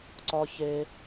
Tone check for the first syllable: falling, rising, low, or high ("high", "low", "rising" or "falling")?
high